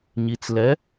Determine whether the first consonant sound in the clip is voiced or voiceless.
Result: voiced